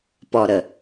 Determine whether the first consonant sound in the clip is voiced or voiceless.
voiceless